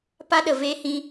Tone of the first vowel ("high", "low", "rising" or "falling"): high